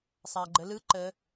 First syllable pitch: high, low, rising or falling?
low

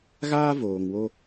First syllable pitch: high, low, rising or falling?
high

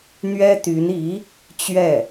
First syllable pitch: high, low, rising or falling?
high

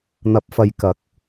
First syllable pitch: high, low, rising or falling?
rising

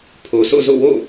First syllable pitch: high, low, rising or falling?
low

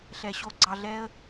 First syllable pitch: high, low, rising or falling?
low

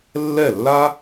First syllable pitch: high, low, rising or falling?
falling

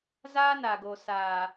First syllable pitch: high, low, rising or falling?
high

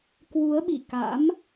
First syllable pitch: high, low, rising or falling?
rising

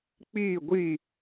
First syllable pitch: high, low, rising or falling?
falling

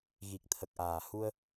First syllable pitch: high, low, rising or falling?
low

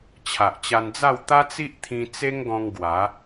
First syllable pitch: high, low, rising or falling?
low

